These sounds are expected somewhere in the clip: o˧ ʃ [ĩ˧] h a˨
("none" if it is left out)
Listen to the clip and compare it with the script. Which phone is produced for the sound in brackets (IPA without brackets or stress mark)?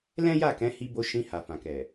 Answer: ĩ˧